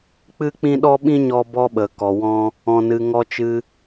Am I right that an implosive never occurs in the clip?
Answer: no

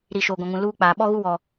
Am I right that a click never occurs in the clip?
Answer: yes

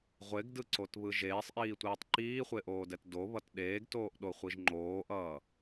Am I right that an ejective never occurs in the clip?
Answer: yes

